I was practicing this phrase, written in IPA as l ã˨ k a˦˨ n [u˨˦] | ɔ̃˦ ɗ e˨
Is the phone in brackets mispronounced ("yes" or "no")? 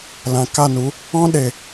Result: no